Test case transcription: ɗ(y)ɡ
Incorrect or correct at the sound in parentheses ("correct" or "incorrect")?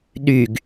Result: correct